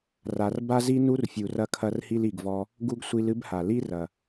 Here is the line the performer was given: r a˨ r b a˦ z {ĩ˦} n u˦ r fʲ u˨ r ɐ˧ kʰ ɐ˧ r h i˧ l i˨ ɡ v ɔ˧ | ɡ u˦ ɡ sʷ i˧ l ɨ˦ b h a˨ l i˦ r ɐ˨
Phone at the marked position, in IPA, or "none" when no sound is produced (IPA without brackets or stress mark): i˦